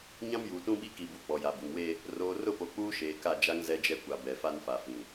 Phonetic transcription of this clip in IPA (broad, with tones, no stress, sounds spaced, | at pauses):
ɲ ã˦ m j uː˨ t ũ˦ ɓ i˦ k i˨ b u˨ k͡p ɔ˨ j a˨ b u˨ ŋ w e˦ | r oː˨ r ʊ˦˨ p o˨ k͡p uː˦ ʃ eː˨ k a˦˨ d͡ʒ a˦ ŋ z ɛ˦ d͡ʒ ɛ˦ kʷ a˨ b ɛ˨ f a˦ n f a˨ f ĩ˨